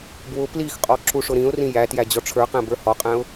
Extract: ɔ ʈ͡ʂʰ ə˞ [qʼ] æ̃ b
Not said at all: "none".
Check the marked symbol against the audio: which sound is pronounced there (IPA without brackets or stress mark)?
q